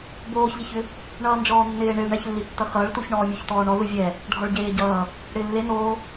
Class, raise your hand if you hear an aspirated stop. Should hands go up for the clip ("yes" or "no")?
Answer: no